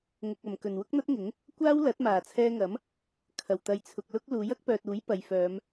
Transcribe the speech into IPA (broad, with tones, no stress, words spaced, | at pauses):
ŋʊ˨k̚ɐ˨˩m kɵ˨˩nwʊ˥k̚n̪ɐ˥t̚ŋɪ˨˥ŋ | kʷaː˥w lɐ˨˥t̚maː˨˩t͡sʰɛː˧ŋɐ˨˥m | kʰɐ˨˩wt̪ɐ˨jt͡sʰʊ˨k̚lʊ˥k̚ luː˨˥jɐ˥k̚pœː˨t̚uː˨˥j pɐ˨jfœː˨˧m